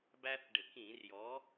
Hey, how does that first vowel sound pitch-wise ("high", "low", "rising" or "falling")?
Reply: high